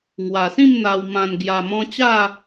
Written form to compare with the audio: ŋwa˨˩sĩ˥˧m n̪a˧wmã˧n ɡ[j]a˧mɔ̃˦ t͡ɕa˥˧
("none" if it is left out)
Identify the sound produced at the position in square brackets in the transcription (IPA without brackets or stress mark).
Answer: j